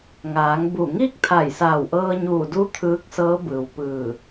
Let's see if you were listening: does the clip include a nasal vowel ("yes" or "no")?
no